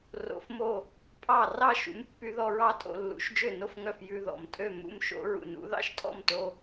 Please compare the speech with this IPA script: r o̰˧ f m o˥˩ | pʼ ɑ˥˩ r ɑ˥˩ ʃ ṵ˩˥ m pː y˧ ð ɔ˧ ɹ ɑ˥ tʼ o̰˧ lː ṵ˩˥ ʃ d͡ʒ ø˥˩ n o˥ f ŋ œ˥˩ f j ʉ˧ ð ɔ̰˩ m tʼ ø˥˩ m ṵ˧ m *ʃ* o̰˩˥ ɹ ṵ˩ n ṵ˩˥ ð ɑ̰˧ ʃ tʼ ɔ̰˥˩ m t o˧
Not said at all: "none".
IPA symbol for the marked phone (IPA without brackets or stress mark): ʃ